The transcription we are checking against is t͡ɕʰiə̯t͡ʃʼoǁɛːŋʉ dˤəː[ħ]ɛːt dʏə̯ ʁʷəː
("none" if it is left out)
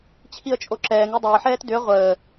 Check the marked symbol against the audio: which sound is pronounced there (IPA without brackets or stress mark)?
ħ